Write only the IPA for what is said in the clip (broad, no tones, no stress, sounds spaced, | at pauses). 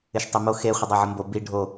ɪ ʃ tˤ e m o x e χʷ ə dˤ ɜ ʕ ə m b o b i ɖʱ o